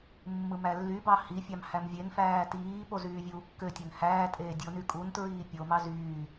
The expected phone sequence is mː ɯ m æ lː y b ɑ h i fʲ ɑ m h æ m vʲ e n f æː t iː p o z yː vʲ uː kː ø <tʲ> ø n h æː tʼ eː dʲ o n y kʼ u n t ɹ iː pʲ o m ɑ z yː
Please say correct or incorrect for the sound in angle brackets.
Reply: correct